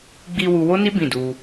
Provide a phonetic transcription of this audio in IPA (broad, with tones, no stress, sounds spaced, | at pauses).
ɡ͡b i˧ w u˧ w o˦ n i˦ b ĩ˦˨ d u˧